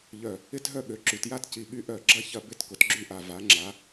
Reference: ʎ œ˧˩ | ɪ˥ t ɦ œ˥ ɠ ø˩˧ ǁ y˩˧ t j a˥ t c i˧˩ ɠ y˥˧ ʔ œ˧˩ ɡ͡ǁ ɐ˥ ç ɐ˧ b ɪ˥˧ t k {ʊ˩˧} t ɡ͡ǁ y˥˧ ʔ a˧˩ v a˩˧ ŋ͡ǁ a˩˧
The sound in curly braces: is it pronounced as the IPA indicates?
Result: yes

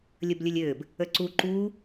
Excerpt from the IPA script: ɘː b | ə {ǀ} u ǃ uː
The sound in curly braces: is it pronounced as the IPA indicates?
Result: yes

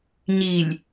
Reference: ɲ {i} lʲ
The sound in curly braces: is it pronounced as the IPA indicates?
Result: yes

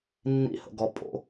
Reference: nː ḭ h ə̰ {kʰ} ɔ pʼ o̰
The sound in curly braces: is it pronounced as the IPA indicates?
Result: no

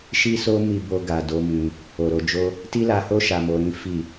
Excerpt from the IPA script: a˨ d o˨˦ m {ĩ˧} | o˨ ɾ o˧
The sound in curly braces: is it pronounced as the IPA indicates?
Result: yes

